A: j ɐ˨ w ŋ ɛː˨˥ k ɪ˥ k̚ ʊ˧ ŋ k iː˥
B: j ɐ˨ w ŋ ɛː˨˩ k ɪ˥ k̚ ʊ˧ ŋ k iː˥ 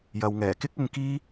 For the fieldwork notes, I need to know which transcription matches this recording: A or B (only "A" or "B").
B